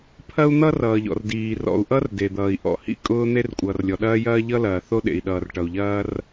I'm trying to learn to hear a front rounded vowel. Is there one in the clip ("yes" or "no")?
no